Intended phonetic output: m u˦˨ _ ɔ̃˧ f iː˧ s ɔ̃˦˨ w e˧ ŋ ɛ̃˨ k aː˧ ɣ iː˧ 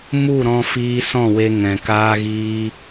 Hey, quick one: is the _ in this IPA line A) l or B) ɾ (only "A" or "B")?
B